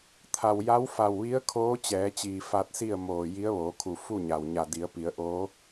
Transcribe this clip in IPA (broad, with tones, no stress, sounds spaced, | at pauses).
t̪ʰ a˩ w j a˧˥ w f a˧˩ w ʋ i˧˥ ə̯ kʰ oː˧˥ t͡ɕ ɛː˩˧ t͡ɕ iː˩ f a˧ t̚ s i˥˨ ə̯ m oː˧˩ j i˧˥ ə̯ ʋ oː˩˧ kʰ u˧˩ f u˥˨ ɲ a˩ w ɲ a˧˩ d i˩˧ ə̯ p i˩˧ ə̯ ʔ oː˧˥